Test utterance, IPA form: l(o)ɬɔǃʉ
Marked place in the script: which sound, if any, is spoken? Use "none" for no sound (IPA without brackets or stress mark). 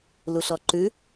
u